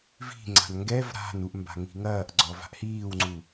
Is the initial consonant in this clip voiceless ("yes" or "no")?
no